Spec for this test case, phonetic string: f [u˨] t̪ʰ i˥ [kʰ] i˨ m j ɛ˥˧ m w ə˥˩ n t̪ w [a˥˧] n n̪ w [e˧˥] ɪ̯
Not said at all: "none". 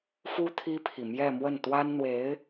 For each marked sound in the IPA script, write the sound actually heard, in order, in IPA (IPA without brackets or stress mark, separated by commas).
u˥, pʰ, a˥, e˧˥